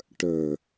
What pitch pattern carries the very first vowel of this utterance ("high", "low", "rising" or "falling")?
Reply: low